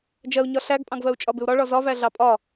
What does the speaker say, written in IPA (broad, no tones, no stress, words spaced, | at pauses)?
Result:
d͡ʒɜu̯ɲɒ ɬæɡpʼɑ̃ɡvɜu̯ t͡ʃʼɒbɪu̯ɾɒ ɭɒzɒvæ ɮɑpʼɒ